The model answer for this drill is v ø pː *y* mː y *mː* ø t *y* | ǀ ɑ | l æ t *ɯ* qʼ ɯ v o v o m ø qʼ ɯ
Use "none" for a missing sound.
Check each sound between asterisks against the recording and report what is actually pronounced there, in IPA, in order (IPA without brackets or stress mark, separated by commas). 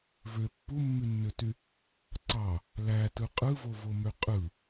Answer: u, nː, y, ɯ